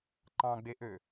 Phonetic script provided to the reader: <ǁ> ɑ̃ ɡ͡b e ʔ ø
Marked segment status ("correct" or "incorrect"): incorrect